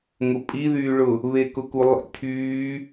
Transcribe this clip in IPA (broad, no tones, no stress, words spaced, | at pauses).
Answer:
ŋʊpʼiðyː ɭʊ | βekʊkulˠḭ tʰyː